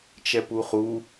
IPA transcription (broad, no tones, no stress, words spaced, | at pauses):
t͡ʃɛpuχu